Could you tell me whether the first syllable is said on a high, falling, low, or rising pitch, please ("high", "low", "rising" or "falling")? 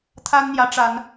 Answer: high